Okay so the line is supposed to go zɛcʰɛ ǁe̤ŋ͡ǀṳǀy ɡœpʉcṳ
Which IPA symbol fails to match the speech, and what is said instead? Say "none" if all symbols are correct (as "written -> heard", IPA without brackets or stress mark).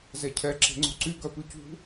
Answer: none